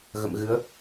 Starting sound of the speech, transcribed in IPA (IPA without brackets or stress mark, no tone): ɣ